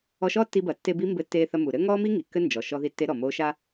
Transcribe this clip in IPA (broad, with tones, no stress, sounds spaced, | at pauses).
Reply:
ɔ˧ ʃ ɔː˥ tː i˧ b ɐ˩ tː e˧ b i˧˥ m b ɘ˧ tː eː˧ θ ɐ˧ m u˩ ɾ ɘ˥ ŋ ɔː˥ m i˥ ŋ i˩ kː ɘ˥ n d͡ʒ ɔ˩ ʃ ɔ˧ ð i˧˥ tː e˧˥ ɾ ɔ˩ m oː˧˥ ʃ a˥